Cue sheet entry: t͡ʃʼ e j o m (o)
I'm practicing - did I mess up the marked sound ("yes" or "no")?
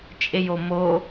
no